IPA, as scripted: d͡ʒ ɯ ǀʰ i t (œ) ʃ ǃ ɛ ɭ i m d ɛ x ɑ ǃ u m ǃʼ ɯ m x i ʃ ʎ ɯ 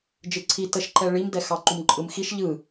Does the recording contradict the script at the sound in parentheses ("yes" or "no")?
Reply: yes